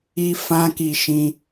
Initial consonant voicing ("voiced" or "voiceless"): voiceless